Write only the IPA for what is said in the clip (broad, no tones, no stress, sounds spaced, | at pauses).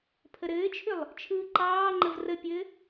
pʰ ə ɾ ɘː t͡ʃʰ ʏ lˠ | t͡ʃʰ ɯː ǃ ɑː ŋ͡ǃ ə v r ə pʲ ɘ